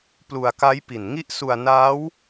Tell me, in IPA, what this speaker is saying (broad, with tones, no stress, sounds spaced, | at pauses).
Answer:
p l u˧ a̯ k a˦˥ j p i˨˩ n ŋ i˦˥ ʔ s u˧ a̯ n aː˦˥ w